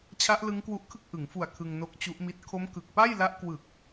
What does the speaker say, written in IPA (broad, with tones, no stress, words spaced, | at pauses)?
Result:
t͡ɕʰa˦˥ʔlɯ˦˥ŋkwu˦˥ʔkʰɯ˥˩k̚ ʔɯ˩˦ŋfu˨˩a̯ kʰɯ˧ŋno˦˥k̚t͡ɕu˦˥ʔmi˦˥t̚ kʰo˦˥m kɯ˨˩k̚pa˥˩jla˦˥ʔkwɯ˨˩k̚